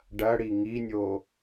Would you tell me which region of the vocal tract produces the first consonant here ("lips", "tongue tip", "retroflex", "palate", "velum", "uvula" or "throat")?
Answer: retroflex